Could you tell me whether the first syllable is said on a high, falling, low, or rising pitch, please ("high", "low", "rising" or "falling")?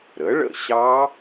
rising